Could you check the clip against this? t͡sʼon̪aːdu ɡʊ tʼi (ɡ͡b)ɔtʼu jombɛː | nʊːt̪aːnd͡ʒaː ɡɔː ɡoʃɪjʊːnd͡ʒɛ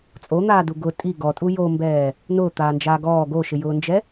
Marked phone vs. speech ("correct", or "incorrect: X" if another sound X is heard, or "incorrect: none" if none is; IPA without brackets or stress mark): incorrect: ɡ